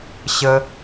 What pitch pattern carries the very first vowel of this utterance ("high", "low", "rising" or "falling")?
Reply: high